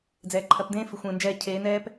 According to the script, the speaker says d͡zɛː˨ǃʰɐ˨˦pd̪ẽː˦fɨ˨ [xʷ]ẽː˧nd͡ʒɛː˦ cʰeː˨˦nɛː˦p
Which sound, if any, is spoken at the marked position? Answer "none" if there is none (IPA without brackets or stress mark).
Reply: xʷ